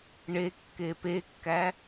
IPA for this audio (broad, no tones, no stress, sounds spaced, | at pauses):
ɳ e kː e p e kː æ